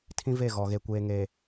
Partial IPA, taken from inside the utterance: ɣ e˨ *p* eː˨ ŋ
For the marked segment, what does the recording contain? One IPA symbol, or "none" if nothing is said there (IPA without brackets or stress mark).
kʷ